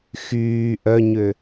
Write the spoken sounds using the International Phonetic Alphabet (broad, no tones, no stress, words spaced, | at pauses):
xyː ʔœɲø